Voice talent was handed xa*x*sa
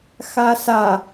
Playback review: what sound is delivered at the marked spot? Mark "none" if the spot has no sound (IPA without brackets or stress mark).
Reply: none